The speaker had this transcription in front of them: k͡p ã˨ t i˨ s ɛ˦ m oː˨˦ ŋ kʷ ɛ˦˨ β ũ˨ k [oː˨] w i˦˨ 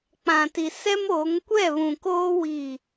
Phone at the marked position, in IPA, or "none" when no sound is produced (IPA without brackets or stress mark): oː˦